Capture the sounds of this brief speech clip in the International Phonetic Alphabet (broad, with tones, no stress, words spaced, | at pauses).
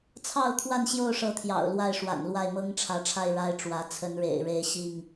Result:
t͡sʰɑ˥˨ʊ̯t̪ʰwa˥˨n ɕjo˥˨ʊ̯ʂɤ˨˦t̪ʰjɑ̰˨˩ʊ̯ lwa˥˨ɪ̯ʂwa̰˨˩nlwa˥˨ɪ̯ mɤ˦ŋʈ͡ʂʰä˨˦ʈ͡ʂʰa˥˨ɪ̯ ɻa˦ɪ̯ʈ͡ʂwä˨˦ t͡sʰə˨˦nɻḛ˨˩ɪ̯ɻe˨˦ɪ̯ ɕi˥˨ŋ